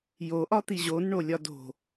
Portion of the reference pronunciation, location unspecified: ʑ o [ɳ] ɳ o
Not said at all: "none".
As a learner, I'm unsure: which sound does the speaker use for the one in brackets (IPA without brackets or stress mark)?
n